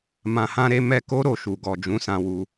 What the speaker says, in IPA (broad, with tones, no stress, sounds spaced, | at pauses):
m ã˨ h ã˧ ɾ e˧ m ɛ˧ k o˦ ɾ o˦˨ ʃ u˨ ɡ ɔ˨ d͡ʒ ũ˨˦ s ã˧ w u˧